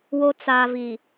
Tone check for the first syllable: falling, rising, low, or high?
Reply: low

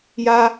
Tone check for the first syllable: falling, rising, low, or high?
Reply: high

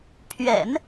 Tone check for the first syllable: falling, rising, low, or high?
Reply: low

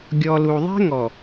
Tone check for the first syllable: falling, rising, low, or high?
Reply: low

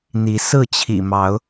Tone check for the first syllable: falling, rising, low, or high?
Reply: rising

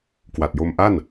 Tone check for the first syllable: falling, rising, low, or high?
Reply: low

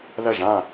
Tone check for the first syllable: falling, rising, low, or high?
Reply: falling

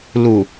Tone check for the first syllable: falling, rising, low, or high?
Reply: low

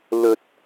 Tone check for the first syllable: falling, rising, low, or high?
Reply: low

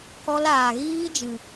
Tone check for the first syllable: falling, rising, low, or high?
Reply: high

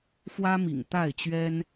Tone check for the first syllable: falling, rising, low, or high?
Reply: high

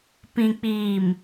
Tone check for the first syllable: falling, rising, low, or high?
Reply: low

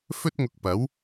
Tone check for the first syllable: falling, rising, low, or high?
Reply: high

